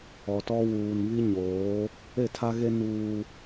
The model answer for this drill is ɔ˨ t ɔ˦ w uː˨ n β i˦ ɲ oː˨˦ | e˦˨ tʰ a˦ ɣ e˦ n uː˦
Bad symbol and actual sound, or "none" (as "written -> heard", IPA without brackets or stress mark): none